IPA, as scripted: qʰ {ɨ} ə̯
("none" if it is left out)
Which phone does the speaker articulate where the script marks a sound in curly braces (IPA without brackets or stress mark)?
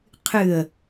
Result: ɨ